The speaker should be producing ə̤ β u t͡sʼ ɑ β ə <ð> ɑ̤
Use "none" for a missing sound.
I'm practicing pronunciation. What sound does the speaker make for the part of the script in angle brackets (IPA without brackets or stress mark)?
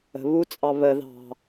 ð